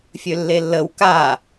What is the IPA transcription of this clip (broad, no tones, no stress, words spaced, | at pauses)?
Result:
fʲølːelːəw ka